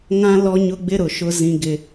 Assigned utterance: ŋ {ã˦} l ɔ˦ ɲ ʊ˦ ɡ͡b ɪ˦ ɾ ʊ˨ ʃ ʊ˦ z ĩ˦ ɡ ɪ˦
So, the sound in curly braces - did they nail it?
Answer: yes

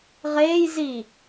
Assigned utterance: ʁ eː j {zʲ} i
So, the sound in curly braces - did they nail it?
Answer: no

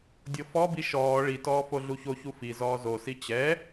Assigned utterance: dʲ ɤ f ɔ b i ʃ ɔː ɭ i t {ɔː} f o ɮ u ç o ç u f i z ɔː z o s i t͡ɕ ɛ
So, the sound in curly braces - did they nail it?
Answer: yes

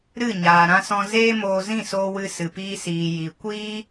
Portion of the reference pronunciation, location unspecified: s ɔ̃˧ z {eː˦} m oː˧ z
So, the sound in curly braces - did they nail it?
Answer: yes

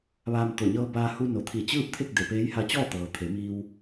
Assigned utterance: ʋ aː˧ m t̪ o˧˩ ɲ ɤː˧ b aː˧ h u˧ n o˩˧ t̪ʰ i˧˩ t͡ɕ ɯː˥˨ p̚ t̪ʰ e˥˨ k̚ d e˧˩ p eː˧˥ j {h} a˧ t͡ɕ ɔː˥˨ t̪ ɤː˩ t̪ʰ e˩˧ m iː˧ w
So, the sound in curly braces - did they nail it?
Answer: yes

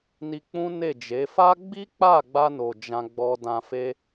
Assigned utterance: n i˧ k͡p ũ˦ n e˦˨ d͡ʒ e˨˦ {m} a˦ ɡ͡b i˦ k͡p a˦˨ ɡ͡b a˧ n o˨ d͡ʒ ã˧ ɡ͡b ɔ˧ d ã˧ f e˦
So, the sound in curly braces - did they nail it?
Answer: no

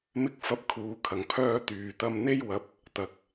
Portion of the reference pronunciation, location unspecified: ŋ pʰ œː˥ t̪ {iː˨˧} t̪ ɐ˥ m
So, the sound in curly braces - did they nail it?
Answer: no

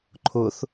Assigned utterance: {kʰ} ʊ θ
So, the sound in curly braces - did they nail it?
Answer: no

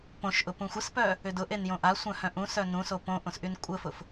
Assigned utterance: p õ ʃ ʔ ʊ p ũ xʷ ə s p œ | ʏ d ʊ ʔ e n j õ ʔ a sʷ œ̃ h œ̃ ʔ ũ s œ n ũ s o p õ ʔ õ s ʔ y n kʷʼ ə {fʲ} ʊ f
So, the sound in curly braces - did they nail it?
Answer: no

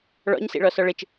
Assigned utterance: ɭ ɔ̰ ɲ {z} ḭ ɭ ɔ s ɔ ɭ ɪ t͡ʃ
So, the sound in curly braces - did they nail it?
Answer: no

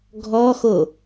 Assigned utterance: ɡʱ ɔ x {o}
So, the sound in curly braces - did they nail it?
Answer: yes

